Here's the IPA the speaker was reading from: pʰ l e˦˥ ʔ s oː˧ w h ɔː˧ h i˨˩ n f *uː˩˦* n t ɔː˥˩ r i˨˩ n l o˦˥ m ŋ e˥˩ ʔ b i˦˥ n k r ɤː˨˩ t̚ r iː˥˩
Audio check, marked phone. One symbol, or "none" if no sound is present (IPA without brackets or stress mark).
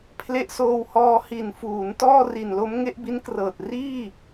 uː˩˦